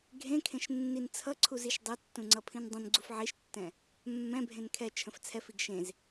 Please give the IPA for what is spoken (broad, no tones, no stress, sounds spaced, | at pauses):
ɡʱ ẽ kʰ ẽ ʃ nː i n t͡sʰ ʌ ǀʰ u z i ʃ dˤ e tː ũ ŋ͡ǀ ʌ pʰ ĩ n dˤ ə̃ n ɡ͡ǀ u f ʕ i ʃ tː ɛ̃ | mː ɛ̃ bʱ ẽ n kʰ ɛ t͡ʃʰ ə̃ f t͡sʰ ɛ f i ɡ ʃ ẽ z